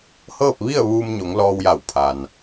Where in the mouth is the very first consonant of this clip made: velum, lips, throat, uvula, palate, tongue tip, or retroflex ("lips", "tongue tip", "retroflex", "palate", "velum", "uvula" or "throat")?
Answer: throat